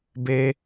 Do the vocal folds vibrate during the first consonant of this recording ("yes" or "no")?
yes